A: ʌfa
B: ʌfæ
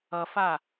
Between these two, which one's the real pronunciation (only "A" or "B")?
A